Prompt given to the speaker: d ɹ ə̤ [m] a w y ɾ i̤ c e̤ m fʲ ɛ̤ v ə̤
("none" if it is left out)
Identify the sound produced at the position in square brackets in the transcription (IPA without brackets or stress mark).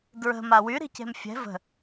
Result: m